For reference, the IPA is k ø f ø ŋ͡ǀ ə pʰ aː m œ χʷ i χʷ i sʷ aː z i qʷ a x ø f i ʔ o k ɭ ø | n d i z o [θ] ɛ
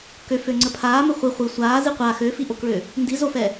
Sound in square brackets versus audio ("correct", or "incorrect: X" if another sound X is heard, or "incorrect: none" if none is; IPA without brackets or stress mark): incorrect: f